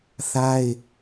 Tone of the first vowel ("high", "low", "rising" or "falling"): high